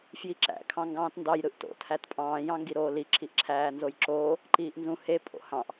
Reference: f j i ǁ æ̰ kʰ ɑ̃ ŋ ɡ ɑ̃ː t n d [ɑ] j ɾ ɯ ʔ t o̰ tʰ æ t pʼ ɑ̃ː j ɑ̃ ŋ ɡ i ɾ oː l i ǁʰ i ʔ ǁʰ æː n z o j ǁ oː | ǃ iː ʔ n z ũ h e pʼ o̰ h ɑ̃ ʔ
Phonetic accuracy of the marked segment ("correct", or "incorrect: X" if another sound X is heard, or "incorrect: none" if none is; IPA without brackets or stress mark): correct